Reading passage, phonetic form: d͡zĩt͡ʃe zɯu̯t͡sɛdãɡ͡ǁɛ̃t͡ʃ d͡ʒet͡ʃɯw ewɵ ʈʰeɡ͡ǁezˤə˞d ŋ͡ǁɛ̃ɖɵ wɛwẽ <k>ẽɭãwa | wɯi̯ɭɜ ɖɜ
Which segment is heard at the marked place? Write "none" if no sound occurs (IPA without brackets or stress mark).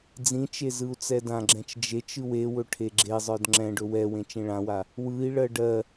t͡ʃ